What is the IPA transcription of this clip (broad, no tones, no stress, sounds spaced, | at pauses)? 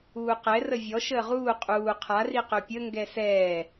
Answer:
uː q ɛ r ə vʲ ɔ ʃ əː ʁ uː qʼ uː qʰ a r i q ø pʲ ə ŋ ɡ ɛ s ɛː